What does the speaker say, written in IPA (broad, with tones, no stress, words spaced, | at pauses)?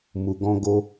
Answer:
mu˨ɡɔ̃˧ ɡo˧